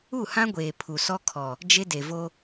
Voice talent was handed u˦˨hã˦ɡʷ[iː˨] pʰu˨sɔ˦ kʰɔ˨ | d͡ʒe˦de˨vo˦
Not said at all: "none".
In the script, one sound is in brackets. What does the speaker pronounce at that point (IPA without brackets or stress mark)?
eː˨